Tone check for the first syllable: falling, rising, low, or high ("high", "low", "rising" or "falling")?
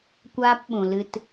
high